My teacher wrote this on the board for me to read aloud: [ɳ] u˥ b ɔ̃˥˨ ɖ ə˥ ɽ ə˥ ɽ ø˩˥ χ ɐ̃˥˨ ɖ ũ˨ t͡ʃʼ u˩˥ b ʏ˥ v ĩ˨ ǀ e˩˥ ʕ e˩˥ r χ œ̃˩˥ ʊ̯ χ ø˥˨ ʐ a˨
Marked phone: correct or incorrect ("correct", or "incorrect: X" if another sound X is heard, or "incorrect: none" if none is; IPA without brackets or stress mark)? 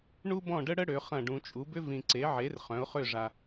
correct